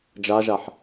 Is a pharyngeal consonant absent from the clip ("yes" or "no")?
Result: no